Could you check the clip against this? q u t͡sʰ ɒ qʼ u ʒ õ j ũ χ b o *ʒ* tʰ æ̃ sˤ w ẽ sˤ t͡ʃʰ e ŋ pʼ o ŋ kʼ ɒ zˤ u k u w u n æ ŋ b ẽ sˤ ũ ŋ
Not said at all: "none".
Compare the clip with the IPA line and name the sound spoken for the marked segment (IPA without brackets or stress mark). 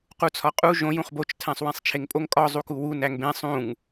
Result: t͡ʃ